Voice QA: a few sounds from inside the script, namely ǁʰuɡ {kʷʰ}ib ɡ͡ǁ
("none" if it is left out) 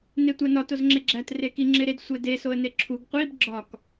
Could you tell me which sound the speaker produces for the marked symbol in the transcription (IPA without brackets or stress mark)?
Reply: qʷ